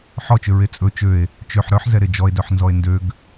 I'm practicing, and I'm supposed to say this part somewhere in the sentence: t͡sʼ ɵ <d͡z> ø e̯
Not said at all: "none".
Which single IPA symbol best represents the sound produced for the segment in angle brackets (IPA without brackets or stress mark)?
t͡ʃ